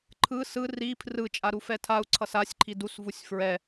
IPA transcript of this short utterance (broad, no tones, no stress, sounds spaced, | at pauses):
ǃʰ ɯ s ɯ r i pʰ r ɯ t͡ʃʼ a ɾ u f ɛ tʰ a u̯ ǀʰ ʌ s a sʲ ǃʰ i d u s v u sʲ f ɹ ɛ